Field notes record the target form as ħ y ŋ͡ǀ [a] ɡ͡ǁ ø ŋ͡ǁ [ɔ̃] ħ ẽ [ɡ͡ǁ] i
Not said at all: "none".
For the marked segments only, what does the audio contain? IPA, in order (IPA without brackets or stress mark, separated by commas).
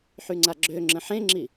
a, ə̃, ŋ͡ǁ